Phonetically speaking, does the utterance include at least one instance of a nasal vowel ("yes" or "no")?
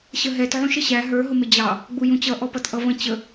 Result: yes